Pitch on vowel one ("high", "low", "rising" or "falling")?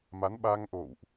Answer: rising